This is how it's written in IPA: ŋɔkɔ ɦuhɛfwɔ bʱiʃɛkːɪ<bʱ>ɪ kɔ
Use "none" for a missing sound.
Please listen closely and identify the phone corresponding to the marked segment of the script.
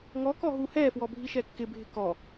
bʱ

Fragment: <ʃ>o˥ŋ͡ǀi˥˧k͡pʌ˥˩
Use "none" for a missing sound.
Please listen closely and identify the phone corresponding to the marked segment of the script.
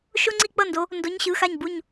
ʃ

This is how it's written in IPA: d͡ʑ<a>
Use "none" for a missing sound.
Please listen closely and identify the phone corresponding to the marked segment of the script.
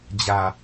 a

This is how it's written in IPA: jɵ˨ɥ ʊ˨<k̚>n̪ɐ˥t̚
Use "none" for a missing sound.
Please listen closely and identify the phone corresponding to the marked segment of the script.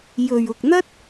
k̚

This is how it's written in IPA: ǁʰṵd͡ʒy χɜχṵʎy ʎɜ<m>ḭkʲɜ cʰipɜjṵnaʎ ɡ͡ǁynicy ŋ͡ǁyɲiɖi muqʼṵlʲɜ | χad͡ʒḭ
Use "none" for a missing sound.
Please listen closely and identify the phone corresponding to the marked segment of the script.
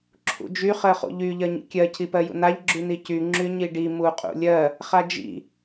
ɲ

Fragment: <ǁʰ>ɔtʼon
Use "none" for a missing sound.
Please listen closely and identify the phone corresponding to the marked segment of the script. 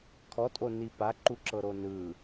kʰ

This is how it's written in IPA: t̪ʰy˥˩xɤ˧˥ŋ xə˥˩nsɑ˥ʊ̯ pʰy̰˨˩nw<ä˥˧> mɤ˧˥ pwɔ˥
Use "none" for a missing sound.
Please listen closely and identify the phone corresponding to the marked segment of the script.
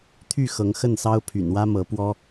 ä˥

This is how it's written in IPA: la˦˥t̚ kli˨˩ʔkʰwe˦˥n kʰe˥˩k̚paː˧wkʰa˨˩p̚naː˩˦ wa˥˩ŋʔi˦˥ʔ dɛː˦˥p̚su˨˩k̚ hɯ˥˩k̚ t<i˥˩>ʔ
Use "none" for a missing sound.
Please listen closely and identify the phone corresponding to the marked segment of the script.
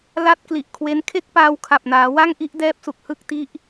i˦˥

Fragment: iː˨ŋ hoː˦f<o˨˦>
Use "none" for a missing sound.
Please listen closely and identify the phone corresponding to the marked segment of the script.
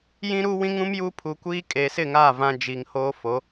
o˨˦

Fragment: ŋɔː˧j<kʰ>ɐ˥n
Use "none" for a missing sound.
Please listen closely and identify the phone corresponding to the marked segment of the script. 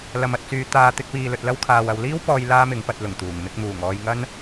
ŋ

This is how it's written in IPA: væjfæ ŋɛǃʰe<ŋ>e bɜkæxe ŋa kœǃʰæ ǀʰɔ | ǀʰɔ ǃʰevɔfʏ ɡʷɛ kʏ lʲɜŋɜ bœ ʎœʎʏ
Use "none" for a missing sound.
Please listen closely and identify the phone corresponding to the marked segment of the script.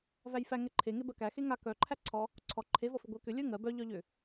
ŋ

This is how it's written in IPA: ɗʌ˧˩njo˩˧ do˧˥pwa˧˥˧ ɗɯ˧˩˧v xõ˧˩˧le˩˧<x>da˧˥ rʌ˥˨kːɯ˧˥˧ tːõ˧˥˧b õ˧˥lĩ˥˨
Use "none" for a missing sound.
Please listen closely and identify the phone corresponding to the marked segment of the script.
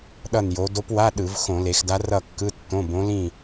x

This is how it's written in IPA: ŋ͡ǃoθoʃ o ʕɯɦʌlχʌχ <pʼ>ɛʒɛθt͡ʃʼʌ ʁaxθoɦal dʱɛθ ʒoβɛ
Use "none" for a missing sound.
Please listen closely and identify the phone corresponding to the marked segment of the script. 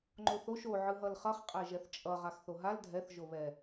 qʼ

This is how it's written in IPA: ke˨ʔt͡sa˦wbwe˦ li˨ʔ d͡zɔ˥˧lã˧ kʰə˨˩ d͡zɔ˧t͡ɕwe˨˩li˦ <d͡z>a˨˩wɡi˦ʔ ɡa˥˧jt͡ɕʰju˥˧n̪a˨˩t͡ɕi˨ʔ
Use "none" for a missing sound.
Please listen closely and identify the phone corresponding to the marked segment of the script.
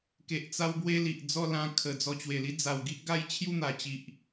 d͡z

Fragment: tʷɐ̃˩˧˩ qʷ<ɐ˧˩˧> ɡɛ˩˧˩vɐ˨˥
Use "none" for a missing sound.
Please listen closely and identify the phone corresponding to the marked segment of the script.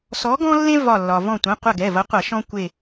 ɐ˧˩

